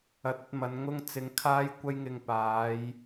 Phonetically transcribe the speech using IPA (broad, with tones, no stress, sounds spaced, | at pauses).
ɐ˨ t̚ ɐ˧ t̚ m ɐ˨˧ n ŋ ʊ˧ ŋ t͡s ɪ˨˧ ŋ kʰ aː˥ j kʷ ɐ˥ j ŋ ɪ˧ ŋ p aː˨˧ j